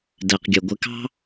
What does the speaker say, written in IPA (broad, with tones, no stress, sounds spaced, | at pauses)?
d ɛ˩ q ɡʲ ʌ˩ ɡʷ ɪ˧ k ɑ̤˥